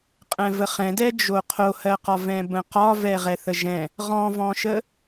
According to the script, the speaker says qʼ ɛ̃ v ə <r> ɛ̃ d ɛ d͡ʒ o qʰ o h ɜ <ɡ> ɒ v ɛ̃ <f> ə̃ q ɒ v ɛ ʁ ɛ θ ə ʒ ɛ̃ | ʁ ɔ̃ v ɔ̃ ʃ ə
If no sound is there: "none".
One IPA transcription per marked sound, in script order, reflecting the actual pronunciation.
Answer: χ, q, b

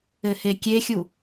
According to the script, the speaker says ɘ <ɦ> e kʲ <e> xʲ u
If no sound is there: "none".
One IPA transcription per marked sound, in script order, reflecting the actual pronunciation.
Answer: h, e

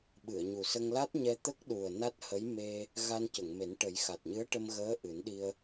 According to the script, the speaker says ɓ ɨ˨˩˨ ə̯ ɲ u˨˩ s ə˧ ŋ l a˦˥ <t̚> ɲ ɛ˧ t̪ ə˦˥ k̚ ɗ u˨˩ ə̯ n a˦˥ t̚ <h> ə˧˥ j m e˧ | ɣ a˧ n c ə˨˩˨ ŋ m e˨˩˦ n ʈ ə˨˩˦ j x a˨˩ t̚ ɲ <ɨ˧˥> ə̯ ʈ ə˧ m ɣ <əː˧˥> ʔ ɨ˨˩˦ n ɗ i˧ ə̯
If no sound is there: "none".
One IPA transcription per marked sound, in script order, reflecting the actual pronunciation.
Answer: t̚, h, ɨ˧˥, əː˧˥

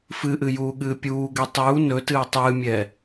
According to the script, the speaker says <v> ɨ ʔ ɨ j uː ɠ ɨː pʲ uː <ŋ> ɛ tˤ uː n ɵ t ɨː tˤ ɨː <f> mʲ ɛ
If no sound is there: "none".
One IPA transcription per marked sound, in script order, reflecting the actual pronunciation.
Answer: f, ɡ, none

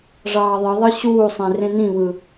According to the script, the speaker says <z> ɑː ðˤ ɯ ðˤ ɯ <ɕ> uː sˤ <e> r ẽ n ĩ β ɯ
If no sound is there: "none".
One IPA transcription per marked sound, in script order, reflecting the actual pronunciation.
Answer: ʐ, ɕ, ẽ

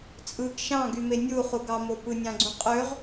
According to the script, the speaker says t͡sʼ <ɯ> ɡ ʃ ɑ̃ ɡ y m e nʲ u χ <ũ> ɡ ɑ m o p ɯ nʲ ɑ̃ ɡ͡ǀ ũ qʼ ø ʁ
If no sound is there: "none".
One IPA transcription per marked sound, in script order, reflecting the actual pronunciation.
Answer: ɯ, u

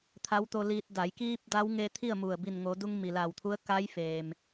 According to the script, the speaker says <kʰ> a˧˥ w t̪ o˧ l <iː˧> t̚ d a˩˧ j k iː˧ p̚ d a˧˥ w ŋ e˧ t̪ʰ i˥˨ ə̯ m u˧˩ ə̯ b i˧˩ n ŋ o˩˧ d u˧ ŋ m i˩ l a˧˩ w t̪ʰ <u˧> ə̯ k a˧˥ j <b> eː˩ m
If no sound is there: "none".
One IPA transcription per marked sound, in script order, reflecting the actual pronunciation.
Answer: t̪ʰ, iː˧, u˧˥, f

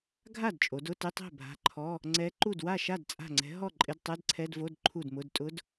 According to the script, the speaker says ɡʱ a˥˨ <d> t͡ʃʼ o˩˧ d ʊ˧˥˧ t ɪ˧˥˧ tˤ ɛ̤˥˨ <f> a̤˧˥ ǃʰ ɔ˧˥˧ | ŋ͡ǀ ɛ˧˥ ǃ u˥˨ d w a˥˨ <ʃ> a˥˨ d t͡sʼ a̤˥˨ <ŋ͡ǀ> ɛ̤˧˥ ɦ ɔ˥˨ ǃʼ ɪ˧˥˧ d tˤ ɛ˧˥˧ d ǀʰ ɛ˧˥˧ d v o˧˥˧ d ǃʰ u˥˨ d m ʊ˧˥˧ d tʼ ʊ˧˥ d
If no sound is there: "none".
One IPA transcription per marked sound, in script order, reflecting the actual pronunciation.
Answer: d, bʱ, ʃ, ŋ͡ǀ

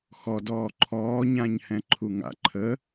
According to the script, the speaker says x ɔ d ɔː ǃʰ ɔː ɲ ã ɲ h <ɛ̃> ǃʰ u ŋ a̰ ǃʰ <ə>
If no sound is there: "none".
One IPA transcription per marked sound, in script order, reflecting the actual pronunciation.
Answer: ɛ̃, ə

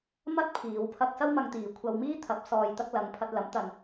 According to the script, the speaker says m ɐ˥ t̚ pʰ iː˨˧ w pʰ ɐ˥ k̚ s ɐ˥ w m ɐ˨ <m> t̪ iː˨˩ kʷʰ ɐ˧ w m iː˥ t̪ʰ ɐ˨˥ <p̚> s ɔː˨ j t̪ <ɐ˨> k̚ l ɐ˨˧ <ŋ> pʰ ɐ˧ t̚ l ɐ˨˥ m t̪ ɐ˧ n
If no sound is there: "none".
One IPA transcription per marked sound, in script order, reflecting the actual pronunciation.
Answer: ŋ, p̚, ɐ˧, ŋ

